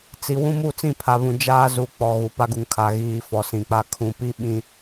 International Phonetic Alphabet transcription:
t͡s i˨ w ũ˦ m u˦˨ t͡s ĩ˦˨ pʰ a˨ β ũ˨ d͡ʒ aː˦ z u˨ k͡p ɔ˨ ɣ u˨ p a˦ ɡ u˨ ŋ kʰ a˨ ɣ iː˨ f ɔ˨ s ĩ˨ k͡p a˦ kʰ ũ˨ p i˦ ɓ ĩ˦

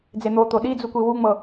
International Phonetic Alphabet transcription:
d͡z e n̪ o t̪ o ɗ i d͡z u kʷ i w u ŋ͡m ɤ

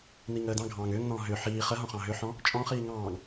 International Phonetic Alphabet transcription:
n i ŋ əː d ɑ̃ ɡʱ ɑ̃ː ŋ ʏː ŋ n ɔ̃ː ɦ ʏ ħ iː χ ə ɦ ɔ̃ χ ɑ̃ ɦ ʏ ħ ɔ̃ | t͡ʃʼ ɔ̃ χ iː ŋ ɑ̃ː ŋ

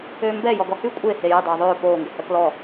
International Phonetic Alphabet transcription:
øː m b ɛ j ɔ ɡ ɔ h y kʷʼ e h e j ə dˤ øː ðˤ øː p oː ŋ ɡ ə h œ k l ɔ

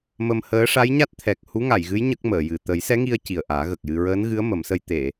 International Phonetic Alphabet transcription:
m ə˧ m h əː˧˥ ʂ a˧˥ j ɲ a˦˥ t̚ t̪ʰ ɛ˨˩ k̚ h u˧˥ ŋ a˨˩˨ j ɣ ɨ˧˥ j ɲ ə˦˥ k̚ m əː˨˩˨ j ɨ˨˩ t̪ ə˨˩˦ j s ɛ˧˥ ŋ i˧ ə̯ c i˨˩ ə̯ ʔ aː˨˩˦ ɣ ə˨˩ k̚ j ɨ˧ ɹ əː˧˥ n ɣ ɨ˧˥ ə̯ m ə˨˩˦ m s ə˧ j t̪ e˨˩˨

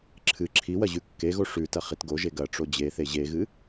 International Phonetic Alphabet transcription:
ǁʰ ɨ ǁʰ i w ɐ ʑ ʉ kː e ɣ o ʂ ʉ t ɐ χ i t ɡ o ʒ e ɡ ɐ ʈ͡ʂ o d͡ʑ e θ e ʑ e ɣ ɨ

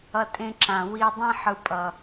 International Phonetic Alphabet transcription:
ʌ˧ tʼ ẽ˧ ǁ ã˨ w i˧ dˤ ẽ˦ ħ ɯ˨ pʼ ʌ˨

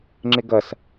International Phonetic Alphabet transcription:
ŋ͡ǁ ɪ ɡ ʌ s

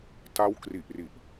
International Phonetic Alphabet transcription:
t a˦˥ w k r i˨˩ ʔ r i˨˩ ʔ

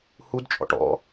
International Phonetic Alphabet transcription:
h u d t͡ʃʼ ɔ̰ ʈ ɔ̰

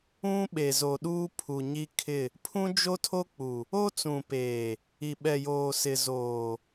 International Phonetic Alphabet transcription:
ũ˦ ɓ e˨ z o˨ ɗ uː˦ pʰ u˨ ɲ i˦ kʰ ɪ˦˨ | pʰ ũ˦ d͡ʒ o˦ tʰ o˦ k͡p u˨ | o˦ t͡s ũ˨ p eː˨ | i˨ ɓ ɛ˨ j oː˨ s ɪ˨ z oː˨

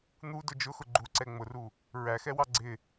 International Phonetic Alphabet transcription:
n̪ u d ʊ d͡ʒ ʊ x ʊ ɡ͡ǃ u ǀ ɛ ŋ͡m ʊ r u | ɹ æ x ɛ w ɑ ɡ͡ǀ ɪ

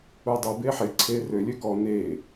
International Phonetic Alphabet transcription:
u dˤ ɛ b e ħ e ǀʰ e r ø lʲ ø k ɔ n e

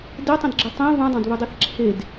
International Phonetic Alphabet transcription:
d ɪ tˤ ə̃ d ɡ͡ǁ ə tˤ ẽ β ũ dˤ ɑ̃ d β ɨ dˤ e θ ǁʰ e d

